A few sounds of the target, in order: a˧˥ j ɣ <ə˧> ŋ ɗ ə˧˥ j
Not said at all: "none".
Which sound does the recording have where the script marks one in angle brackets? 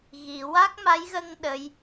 ə˧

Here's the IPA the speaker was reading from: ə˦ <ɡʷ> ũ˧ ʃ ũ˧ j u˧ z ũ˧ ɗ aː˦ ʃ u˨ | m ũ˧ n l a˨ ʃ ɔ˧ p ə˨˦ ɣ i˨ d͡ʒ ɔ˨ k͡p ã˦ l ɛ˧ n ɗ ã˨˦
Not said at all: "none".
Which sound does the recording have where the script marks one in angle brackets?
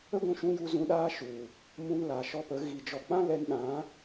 ɡʷ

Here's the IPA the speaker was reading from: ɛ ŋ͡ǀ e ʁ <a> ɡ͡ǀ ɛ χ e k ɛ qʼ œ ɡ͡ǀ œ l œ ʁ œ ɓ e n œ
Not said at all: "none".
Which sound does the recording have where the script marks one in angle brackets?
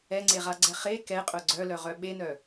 a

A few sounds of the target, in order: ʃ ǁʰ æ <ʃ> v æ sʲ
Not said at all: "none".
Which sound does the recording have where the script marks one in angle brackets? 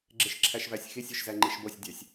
ʃ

